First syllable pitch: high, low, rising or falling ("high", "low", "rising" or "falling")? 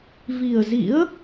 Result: low